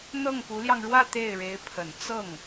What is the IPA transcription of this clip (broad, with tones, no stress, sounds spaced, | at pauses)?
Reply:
n̪ ɤ˥˩ ŋ p u˧˥ l j ɑ˧ ŋ ɻ w ä˥˧ t̪ e˥˩ ɪ̯ ɻ e˧˥ ɪ̯ pʰ ə˨˩ n t͡s ɤ˥˩ ŋ